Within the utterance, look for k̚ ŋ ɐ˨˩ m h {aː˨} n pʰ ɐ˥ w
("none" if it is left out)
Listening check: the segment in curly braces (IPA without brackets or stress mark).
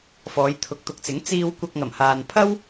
aː˨